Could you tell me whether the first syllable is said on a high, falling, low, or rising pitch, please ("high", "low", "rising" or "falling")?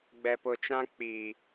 low